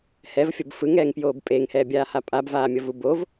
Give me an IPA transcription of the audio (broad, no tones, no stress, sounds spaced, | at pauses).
h ɛ v fʲ ʌ b f ɯ ŋ ɛː ŋ p j oː b pʼ eː ŋ h ɛː bʲ aː h a pʼ a b v aː mʲ ʌ v u b o v